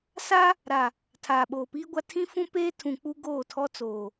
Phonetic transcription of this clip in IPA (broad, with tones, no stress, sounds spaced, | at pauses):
s a˦ | ɾ a˨ | tʰ aː˨ ɓ oː˨ p iː˦ ɡʷ a˦ tʰ ĩ˦ f ũ˦ p eː˦ tʰ ũ˨ k͡p u˦ ɡ oː˦˨ tʰ ɔ˦ t͡s oː˨